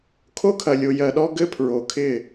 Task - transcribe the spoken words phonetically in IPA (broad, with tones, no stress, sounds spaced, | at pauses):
kʰ o˦ kʰ ɐ˨ lʲ o˨ j ɜ˨ ɗ ɔ˦ ɡ ɘ˦ pʰ ɹ o˨ kʰ ɪ˦˨